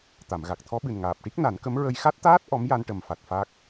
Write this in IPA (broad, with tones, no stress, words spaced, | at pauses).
t̪a˨˩˨mɣa˨˩k̚ t̪ʰɔ˧˥ɓɨ˨˩nŋaː˨˩p̚ʈi˦˥k̚ na˨˩˦nkə˧˥mɹə˧j xa˦˥t̚t̪aː˦˥t̚ ʔɔ˧˥m ja˧n ʈə˨˩mfa˨˩t̚ fa˦˥k̚